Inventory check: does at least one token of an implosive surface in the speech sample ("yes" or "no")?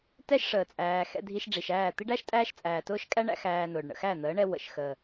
no